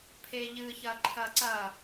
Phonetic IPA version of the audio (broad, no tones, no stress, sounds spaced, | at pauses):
pʰ e ʎ ɨ ç ɐ ǃʰ ɐ ǀ ɐ